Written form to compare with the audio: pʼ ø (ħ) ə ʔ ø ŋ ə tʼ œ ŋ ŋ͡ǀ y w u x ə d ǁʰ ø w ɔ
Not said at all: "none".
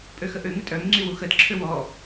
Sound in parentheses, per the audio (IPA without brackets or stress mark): x